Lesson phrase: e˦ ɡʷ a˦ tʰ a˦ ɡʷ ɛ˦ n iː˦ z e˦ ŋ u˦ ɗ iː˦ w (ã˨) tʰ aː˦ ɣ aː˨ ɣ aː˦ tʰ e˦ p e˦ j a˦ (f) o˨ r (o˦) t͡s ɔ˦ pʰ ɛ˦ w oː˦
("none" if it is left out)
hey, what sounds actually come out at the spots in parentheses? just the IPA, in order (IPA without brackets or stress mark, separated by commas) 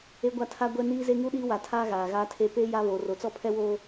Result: a˨, β, o˨